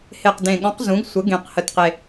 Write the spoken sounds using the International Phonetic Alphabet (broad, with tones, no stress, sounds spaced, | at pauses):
h e˨˩ q d ẽ˨˩ ɠ ɔ̃˨˦ q z ũ˨˦ ɡ sʷ ə˨˦ ɡ ẽ˨˩ q h ə˨˩ t q e˨˩